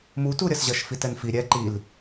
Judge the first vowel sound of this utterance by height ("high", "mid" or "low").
high